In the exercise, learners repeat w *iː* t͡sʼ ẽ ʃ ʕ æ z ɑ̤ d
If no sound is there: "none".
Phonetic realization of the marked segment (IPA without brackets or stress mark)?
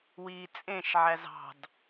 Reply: iː